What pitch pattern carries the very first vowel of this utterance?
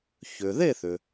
low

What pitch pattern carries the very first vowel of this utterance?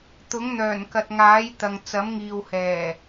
rising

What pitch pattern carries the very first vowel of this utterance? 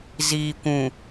low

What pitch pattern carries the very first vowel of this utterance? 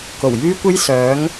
low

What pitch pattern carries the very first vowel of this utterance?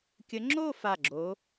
rising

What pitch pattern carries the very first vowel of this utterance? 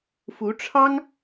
rising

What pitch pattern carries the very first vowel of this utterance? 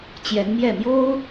rising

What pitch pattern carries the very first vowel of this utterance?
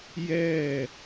falling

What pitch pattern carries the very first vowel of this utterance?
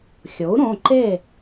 rising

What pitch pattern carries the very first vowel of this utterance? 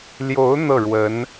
rising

